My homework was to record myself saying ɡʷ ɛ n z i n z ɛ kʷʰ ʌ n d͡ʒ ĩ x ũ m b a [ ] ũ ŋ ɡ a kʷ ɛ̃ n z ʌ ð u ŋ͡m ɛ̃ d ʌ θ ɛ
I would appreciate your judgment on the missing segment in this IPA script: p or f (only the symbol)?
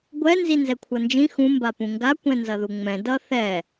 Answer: p